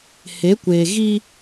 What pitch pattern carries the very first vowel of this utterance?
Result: rising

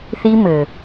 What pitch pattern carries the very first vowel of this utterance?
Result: high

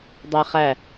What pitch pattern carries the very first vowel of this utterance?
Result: high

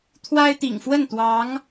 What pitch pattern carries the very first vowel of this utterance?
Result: high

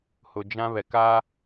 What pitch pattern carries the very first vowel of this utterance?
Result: low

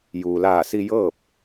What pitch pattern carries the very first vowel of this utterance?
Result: low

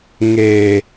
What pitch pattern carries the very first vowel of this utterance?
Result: low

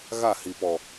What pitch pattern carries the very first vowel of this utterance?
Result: falling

